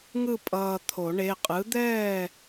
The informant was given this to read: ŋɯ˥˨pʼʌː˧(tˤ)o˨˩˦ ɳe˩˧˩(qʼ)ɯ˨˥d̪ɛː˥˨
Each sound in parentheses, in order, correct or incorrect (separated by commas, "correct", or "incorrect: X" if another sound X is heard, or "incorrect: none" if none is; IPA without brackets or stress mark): incorrect: t̪ʰ, correct